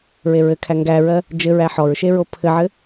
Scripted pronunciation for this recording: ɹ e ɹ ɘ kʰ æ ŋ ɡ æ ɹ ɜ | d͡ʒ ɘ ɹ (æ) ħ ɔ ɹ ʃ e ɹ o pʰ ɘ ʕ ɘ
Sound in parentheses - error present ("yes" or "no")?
no